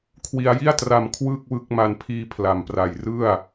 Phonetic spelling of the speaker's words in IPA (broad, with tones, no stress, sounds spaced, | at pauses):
kʰ w i˧ a̯ j i˥˩ a̯ t r a˧ m kʰ w ɯː˥˩ k̚ w ɯ˦˥ k̚ m a˧ n pʰ iː˧ pʰ l a˨˩ m p r a˨˩ j r ɯ˥˩ a̯